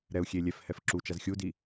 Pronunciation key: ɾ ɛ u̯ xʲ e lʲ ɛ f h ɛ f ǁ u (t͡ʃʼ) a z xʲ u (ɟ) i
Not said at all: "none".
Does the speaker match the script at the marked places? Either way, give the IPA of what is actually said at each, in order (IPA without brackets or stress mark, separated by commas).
t͡ʃ, d